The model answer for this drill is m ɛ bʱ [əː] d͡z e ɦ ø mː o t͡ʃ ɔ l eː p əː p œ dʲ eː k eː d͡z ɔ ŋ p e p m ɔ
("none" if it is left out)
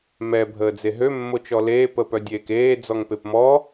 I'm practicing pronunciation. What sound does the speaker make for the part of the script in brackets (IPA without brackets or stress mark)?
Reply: əː